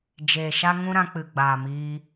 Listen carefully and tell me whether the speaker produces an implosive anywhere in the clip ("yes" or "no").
no